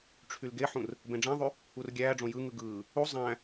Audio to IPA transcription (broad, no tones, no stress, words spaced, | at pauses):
ʈ͡ʂʰylɡeħũr | bẽɖ͡ʐæ̃ðˤy | urɡʲæːɖ͡ʐõ jɯ ŋɯɡɯː | u zˤæ̃